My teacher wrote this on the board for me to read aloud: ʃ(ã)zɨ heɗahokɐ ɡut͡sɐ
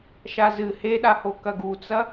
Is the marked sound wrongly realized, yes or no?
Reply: yes